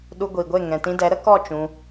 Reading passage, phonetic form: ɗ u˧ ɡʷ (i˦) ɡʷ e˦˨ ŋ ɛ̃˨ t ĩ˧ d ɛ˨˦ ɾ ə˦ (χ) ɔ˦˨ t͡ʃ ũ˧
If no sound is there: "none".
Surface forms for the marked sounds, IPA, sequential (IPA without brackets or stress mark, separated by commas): i˨, k